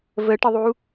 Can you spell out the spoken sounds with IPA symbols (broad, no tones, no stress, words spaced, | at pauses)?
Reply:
vəʈəðˤu